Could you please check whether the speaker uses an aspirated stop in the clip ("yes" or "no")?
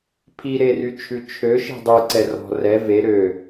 yes